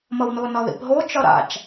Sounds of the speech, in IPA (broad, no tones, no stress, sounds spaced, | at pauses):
m ʌ w n o n ɒ ð ḭ p ɦ o t͡ʃ ɒ ɾ a̰ t͡ʃ